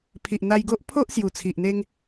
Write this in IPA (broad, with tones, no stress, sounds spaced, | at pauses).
pʰ i˨ ʔ n̪ a˧ j ɡ o˦ ʔ pʰ o˦ ʔ s j u˨˩ t͡sʰ i˨ ʔ n̪ e˦ ŋ